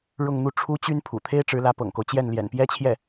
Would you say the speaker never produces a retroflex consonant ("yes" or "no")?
no